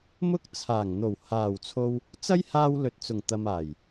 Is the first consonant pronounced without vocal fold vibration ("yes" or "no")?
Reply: no